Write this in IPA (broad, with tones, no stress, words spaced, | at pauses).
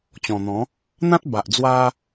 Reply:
t͡ɕɔ̃˨˩n̪ɔ̃˨˦ | n̪ã˦t̚ ba˨ʔd͡zwa˦